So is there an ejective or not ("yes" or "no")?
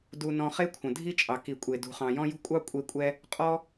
yes